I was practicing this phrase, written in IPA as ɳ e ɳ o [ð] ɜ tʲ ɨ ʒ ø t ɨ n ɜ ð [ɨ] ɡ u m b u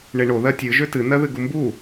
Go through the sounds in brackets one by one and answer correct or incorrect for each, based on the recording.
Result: correct, correct

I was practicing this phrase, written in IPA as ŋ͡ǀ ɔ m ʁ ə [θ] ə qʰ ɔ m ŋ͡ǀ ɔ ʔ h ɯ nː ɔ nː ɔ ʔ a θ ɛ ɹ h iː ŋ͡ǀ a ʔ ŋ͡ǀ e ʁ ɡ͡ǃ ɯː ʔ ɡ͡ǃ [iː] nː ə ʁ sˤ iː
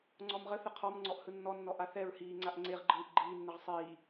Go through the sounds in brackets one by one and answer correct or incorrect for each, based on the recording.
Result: correct, correct

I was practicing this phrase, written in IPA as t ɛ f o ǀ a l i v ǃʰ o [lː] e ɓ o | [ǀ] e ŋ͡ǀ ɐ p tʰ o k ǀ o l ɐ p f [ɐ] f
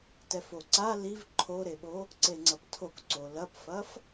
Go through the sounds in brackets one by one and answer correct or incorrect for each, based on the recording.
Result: incorrect, correct, correct

